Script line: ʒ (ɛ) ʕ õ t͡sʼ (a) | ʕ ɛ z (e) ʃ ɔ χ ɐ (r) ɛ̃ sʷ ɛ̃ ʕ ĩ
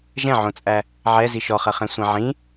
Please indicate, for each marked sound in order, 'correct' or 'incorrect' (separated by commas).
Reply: incorrect, incorrect, incorrect, incorrect